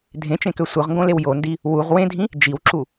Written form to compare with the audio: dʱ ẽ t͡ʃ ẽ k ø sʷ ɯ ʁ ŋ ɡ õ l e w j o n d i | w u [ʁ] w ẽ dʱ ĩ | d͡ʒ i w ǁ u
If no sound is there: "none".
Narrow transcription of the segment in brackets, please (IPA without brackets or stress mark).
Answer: ʁ